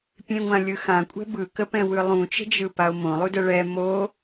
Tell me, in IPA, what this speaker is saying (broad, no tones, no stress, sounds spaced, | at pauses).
pʲ ẽ ŋʷ ã lʲ ɯ x ã kʷʼ ɛ̤ b ɯ k ə p ɛ̃ w ɯ lˠ ũ t͡ʃ ə̤ d͡ʒ ɯ p a o̯ m õ lˠ u d ə ɭ ɛ m o